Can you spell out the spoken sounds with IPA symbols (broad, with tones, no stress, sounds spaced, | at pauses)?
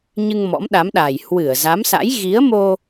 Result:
ɲ ɨ˧ ŋ m ɔ̰˧˥ m ɗ a˨˦ m ɗ a˨˩ j h w ɨ˧˩ ə̯ z a˨˦ m s a̰˧˥ j ɣ i˨˦ ə̯ m o˧